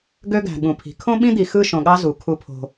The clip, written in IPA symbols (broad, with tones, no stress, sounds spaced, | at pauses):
ɡ ø˦ ɡ æ̤˨ ɠ ũ˨ pʰ i̤˨˦ kʰ õ˦ ɓ ĩ˦ d̪ i˨ x ɯ˦˨ ʃ õ˨ ɠ ɑ˦ z u˨˦ kʰ u˦ pʰ o̤˦